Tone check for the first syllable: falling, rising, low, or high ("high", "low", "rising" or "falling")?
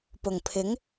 low